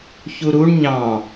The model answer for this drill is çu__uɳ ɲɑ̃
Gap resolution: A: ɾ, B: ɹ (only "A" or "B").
A